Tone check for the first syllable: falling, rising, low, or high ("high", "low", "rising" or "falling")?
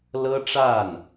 high